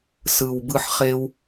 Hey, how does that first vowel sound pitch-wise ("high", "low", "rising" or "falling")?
low